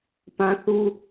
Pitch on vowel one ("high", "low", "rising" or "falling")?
high